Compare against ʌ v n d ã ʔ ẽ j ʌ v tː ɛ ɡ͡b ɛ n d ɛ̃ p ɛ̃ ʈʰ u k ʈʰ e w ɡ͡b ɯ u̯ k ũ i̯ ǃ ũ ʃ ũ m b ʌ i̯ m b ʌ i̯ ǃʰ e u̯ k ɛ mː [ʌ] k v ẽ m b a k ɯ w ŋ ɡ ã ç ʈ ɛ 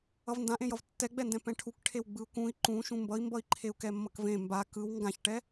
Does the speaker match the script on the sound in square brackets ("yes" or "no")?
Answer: yes